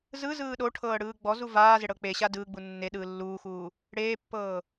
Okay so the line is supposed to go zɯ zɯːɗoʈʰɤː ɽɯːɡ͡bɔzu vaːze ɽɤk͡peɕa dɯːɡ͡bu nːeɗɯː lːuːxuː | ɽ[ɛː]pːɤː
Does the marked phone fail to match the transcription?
yes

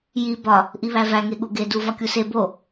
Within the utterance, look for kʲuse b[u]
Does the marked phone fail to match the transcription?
yes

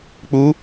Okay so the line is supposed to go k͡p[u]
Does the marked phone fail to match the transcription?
no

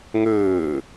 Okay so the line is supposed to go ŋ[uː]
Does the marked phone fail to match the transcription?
yes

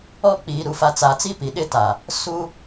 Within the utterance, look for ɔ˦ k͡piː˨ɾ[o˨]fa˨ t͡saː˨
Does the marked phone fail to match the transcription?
yes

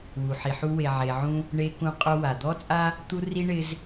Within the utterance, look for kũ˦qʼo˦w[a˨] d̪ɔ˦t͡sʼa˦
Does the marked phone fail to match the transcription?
no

